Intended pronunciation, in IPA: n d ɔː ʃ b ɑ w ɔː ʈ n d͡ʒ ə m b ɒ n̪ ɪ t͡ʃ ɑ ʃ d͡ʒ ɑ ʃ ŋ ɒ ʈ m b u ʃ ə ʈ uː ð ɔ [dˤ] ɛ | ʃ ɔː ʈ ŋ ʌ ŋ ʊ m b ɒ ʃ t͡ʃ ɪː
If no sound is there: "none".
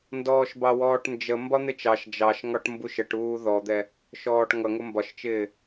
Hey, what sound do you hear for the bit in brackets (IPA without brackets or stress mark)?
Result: d̪